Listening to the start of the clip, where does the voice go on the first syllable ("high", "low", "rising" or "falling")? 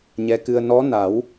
rising